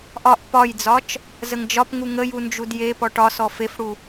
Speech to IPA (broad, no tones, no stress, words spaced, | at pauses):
ʔɒʔ pɒjd͡zɒt͡ʃ | zəŋd͡ʒɒpŋu ŋəju nd͡ʒudjepɔ ʈɒsɔ fefɽu